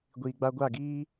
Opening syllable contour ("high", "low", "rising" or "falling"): low